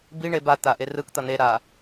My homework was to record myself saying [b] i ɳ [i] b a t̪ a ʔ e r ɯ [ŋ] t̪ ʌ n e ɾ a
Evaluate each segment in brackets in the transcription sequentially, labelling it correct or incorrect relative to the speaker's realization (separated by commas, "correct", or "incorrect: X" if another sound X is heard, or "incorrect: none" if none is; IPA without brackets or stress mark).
correct, incorrect: e, incorrect: k